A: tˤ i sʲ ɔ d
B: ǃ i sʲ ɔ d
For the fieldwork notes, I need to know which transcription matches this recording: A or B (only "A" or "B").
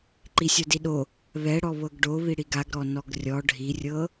B